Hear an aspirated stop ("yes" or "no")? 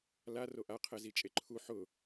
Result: yes